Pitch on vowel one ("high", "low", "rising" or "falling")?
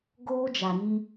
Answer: high